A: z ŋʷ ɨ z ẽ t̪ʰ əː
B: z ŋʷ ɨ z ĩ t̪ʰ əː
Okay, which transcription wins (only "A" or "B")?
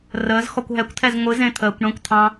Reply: A